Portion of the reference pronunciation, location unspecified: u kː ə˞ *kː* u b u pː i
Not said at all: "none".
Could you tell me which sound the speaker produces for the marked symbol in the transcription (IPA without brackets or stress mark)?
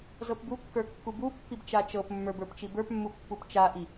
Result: kː